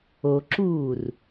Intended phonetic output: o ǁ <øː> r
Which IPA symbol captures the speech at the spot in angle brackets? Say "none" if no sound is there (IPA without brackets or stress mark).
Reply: uː